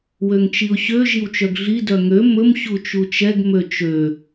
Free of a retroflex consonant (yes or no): yes